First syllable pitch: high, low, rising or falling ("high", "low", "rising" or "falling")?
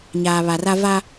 low